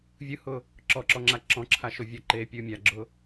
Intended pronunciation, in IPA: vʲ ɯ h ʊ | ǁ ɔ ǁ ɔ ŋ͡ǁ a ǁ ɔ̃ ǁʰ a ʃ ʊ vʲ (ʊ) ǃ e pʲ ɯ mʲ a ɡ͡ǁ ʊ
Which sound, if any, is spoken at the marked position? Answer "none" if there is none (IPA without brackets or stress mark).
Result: ɔ